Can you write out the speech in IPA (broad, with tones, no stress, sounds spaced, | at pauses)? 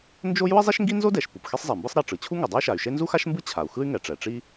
n d͡ʒ o˥ j u˥ i̯ zˤ e˥ ʃ ŋ ɡ i˥ n z o˥ d ɛ˩ ʃ p u˩ p x e˥ sˤ zˤ ɛ˩ m b ɯ˥ sˤ ɾ ɛ˩ ʈ͡ʂ ɯ˩ t͡ɕʰ u˥ ŋ ɛ˩ dˤ e˥ y̯ ʃ a˩ y̯ ʃ e˥ n z u˥ x a˥ ʃ m b ɯ˥ t͡ɕʰ a˩ u̯ x ɯ˥ y̯ ŋ ɛ˩ ʈ͡ʂ ɛ˩ ʈ͡ʂ i˥